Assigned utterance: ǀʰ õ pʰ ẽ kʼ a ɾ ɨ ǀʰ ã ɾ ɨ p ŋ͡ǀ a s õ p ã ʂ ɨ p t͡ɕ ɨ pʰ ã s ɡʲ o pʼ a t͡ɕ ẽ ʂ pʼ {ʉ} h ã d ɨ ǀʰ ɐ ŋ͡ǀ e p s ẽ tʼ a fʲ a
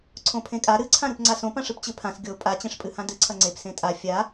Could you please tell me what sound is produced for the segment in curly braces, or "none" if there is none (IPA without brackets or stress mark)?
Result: ɨ